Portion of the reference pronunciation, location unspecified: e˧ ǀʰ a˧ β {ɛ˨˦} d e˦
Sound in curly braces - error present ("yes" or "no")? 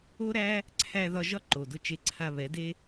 no